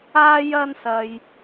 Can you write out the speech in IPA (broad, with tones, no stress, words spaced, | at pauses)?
aː˥jɐ˥nsɐ˧j